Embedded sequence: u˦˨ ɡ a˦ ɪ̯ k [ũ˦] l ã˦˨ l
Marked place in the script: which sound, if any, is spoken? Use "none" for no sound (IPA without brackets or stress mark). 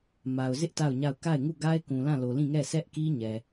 ũ˨